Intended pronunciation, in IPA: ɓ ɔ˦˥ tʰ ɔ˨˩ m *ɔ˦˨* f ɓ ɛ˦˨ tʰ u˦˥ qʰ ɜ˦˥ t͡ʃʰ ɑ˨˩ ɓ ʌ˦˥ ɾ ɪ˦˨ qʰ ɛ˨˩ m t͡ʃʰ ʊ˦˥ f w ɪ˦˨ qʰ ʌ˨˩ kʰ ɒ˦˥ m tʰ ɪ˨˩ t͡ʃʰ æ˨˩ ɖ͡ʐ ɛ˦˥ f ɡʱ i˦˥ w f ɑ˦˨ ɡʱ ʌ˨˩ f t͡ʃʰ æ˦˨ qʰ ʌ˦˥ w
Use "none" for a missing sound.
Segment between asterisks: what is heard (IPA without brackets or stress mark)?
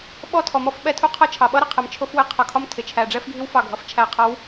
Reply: ɔ˦˨